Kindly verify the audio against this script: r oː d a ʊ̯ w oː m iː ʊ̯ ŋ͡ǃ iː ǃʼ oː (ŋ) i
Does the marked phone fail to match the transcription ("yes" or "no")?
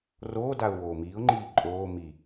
yes